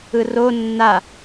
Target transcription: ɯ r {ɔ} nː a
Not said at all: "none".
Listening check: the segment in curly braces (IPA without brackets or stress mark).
o